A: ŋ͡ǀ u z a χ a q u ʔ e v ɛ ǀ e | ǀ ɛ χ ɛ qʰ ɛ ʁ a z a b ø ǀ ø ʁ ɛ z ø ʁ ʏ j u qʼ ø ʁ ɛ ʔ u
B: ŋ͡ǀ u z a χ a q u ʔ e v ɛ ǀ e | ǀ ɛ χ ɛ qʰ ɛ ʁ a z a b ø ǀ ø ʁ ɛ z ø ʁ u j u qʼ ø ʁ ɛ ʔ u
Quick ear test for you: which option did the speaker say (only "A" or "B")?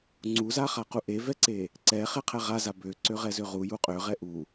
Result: B